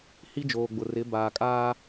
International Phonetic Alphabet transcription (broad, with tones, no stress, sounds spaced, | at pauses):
h i˦ d͡ʒ oː˨ ɡ͡b ʊ˨ r ɪ˨˦ b aː˨ kʼ aː˦